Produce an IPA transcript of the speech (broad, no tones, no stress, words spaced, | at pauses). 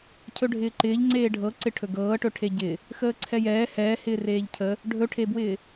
cʰɵɖʱɪːǃɪːʎ ŋ͡ǀeːɖʱɤǀɪ ʈʰɵɡɤː ʈɵʈʰeɟɪ | xəːǀʰɛjɛː hɛː hɪːreːʎcʰə | ɖʱɵʈʰebwɪː